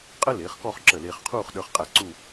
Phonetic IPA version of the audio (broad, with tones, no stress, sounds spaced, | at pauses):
qʼ ə˥ l ɪː˩˧ χ k ɔ˥˧ χ ǁ ə˧˩ l ɪː˧ χ qʰ uː˥˧ χ ɗ ə˞˧ χ qʼ æ˧˩ ǀ u˥˧